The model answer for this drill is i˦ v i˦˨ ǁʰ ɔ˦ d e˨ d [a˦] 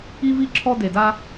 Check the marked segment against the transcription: correct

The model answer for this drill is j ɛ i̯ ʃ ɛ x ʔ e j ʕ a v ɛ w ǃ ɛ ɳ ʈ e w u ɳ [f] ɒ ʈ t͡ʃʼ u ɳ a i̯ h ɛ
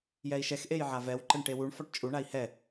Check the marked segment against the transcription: correct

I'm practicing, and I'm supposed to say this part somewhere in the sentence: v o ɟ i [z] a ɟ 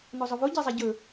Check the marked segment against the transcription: incorrect: zˤ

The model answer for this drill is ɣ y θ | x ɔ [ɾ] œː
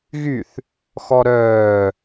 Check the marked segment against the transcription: correct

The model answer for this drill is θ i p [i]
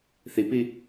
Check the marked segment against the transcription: correct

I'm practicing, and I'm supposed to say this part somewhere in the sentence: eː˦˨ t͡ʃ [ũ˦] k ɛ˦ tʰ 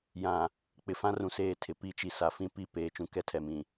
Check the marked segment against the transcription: correct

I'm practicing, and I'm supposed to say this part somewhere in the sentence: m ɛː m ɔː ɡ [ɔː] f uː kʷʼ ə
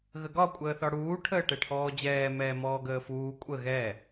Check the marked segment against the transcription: incorrect: əː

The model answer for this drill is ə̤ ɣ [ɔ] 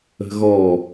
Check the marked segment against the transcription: correct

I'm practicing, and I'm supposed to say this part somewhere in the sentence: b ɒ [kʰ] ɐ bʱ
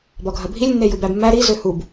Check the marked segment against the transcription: incorrect: ɡʱ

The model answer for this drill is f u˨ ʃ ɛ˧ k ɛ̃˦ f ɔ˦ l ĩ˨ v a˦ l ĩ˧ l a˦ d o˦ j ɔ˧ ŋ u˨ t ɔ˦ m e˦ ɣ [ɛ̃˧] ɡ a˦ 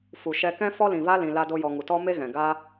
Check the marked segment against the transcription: incorrect: ɛ̃˨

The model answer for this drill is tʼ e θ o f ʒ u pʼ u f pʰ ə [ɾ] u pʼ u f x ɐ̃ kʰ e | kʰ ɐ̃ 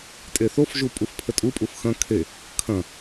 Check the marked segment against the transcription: incorrect: tʼ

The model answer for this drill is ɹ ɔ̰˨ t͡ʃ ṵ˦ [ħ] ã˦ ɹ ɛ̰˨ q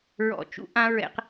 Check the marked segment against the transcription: incorrect: ʔ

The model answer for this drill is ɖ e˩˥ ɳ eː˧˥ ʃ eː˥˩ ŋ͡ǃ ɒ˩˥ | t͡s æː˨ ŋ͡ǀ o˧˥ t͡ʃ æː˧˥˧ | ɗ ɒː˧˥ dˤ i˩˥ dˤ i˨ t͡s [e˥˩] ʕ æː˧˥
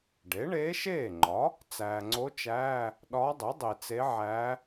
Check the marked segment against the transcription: incorrect: e˧˥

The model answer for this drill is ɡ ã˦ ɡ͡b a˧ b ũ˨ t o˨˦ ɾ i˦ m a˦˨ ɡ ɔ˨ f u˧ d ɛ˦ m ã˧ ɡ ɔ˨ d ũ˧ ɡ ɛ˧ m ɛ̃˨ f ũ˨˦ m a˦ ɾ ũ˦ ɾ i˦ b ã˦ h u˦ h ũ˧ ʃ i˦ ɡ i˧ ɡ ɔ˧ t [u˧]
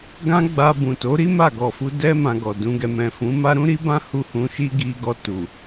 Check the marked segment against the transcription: incorrect: u˨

